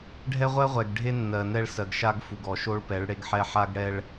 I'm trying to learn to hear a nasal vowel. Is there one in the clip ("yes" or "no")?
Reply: no